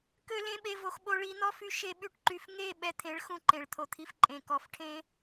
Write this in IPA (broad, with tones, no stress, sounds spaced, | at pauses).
k ø˦ l ẽ˦ ɓ e˧ v o˧ x ɓ o˧ ɭ i˧ n̪ ɔ˦ f y˧ ʃ e˦ ɓ y˦ ʈ ǃ y˧ f ŋ e˦˨ ɓ ɛ˧ t̪ʰ ẽ˨˦ ɭ x ũ˧ ǃ ẽ˨ ɭ t̪ʰ o˨ t̪ʰ i˧ f ǃʼ ẽ˨ k ɔ˨ f ʈʰ ẽ˧